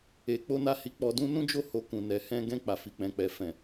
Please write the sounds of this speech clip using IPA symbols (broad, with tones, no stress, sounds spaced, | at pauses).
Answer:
e˨ k͡p o˧ n a˧ h i˧ k͡p ɔ˧ d ũ˧ n ũ˦ d͡ʒ o˦˨ h o˧ k ũ˨ n ɛ˨ h ɛ̃˧ ɡ ɛ̃˧ k͡p a˨ f i˨ k͡p ɛ̃˨ k͡p ɛ˨ f ɛ̃˨